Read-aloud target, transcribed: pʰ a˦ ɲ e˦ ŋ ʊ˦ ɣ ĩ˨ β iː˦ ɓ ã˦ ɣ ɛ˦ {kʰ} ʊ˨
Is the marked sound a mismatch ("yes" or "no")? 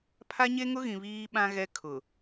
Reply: no